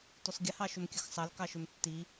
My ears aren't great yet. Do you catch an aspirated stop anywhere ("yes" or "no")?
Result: no